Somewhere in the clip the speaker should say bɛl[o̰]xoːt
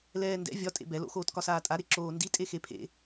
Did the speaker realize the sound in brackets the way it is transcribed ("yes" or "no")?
yes